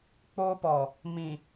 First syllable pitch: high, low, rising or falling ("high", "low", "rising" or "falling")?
high